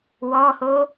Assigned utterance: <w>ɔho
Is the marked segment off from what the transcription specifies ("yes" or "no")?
no